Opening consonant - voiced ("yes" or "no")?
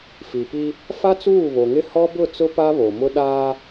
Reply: no